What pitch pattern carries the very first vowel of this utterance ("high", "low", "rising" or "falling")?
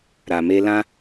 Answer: low